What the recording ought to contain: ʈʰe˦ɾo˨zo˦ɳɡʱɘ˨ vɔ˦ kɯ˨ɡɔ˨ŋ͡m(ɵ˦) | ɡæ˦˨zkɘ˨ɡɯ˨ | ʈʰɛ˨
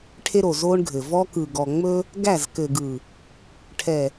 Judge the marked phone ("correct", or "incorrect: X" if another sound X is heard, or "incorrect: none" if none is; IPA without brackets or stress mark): correct